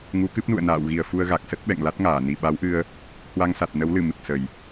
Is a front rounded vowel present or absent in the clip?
absent